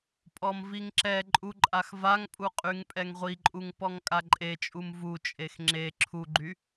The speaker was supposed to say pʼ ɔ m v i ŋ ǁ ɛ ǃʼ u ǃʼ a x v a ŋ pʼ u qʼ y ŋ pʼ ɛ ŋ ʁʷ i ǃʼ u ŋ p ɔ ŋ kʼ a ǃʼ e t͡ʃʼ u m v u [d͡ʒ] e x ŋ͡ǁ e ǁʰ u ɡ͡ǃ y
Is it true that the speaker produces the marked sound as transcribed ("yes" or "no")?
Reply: no